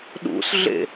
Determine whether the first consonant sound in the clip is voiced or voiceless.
voiced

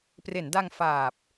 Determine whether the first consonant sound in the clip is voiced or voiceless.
voiceless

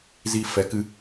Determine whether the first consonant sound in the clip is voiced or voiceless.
voiced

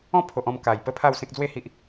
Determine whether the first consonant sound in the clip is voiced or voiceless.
voiceless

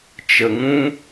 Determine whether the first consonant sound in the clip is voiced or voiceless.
voiceless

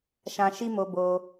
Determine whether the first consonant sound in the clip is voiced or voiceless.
voiceless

